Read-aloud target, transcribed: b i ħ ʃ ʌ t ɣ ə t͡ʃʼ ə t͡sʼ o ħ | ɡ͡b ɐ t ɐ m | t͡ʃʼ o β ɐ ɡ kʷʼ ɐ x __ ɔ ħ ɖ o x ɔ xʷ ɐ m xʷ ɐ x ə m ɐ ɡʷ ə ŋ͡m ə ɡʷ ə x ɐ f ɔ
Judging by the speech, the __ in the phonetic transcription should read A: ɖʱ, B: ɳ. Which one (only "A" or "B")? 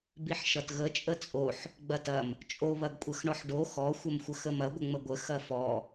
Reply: B